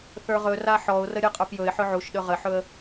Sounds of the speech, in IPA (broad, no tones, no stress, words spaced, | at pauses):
θə˞ʁɵra ħɔʊ̯rə ɾʲə˞qʼə˞pjɵɪ̯ħɵ ʕuʃɗɵ ʁəħɵə̯